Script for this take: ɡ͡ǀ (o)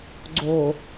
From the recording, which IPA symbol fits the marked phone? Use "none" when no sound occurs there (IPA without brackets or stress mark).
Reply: o